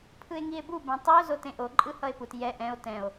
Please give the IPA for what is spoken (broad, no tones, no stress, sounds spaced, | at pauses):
pʰ ɯ e̯ ŋ i e̯ b u b ɛ̃ tˤ i o̯ z o t ẽ ʔ o ǃʼ ɯ h ʌ e̯ p u t j ɛ ʔ ɛ̃ o̯ t ɛ̃ o̯